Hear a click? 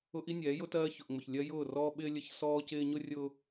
no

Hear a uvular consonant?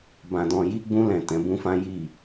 no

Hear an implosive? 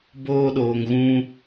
yes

